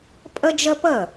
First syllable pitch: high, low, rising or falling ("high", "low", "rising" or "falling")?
high